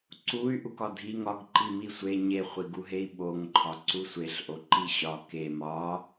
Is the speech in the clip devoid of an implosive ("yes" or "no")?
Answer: no